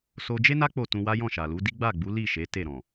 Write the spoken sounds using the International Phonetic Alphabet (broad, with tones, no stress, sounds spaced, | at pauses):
s o˧ d͡ʒ e˦ n a˦ k͡p o˦˨ t ũ˧ w a˦ j ɔ̃˦˨ ʃ a˨ l u˨˦ d i˦ ɡ͡b a˦˨ ɡ͡b u˨˦ l i˦˨ ʃ e˨˦ t e˦˨ ɾ ɔ̃˨